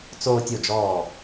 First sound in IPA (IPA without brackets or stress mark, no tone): t͡s